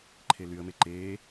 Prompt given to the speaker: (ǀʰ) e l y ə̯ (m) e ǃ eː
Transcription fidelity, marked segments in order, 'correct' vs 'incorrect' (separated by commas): incorrect, correct